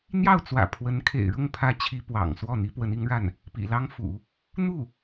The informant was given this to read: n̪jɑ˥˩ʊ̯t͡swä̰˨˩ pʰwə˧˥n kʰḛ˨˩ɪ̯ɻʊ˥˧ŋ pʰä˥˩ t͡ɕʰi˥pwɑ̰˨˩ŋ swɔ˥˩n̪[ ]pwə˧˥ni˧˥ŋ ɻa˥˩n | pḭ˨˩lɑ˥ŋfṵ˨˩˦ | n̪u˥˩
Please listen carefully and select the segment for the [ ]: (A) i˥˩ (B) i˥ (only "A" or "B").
B